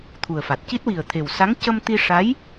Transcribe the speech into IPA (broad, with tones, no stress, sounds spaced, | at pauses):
t̪ʰ u˨˩ ə̯ f a˨˩ t̚ c i˦˥ t̚ w i˨˩ ə̯ t̪ʰ e˨˩ w s a˧˥ ŋ c ə˧ m t̪ i˧ ʂ a˧˥ j